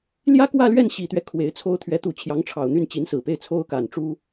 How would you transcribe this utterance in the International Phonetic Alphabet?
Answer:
ljä˥kwä˥˧lɥɛ˥˩n ɕi˨˩t̪ɥɛ˦ kʰwe˧˥ɪ̯t͡sʰo˥ʊ̯ t̪ʰɥɛ˧˥t̪u˧˥ t͡ɕʰjɑ˧˥ŋʈ͡ʂʰɑ˨˩ʊ̯n̪y˥˩n t͡ɕi˧˥nsɹ̩˨˩pe˥˩ɪ̯ t͡sʰo˥ʊ̯ka˨˩n ʈ͡ʂu˥

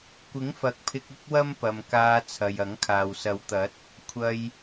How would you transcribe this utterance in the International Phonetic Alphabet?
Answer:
kʷɪ˨˥ŋfɐ˨k̚pʰɪ˧k̚ ʊ˥k̚wɐ˥mpɐ˨m kaː˧ t͡sʰɐ˨jɐ˨˥ŋkʰaː˨w sɐ˨˥wt̪ɐ˨˥t̚ | kʷʰɐ˧j

